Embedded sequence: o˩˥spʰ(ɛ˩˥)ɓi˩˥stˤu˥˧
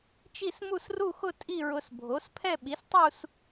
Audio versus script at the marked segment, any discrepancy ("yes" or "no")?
yes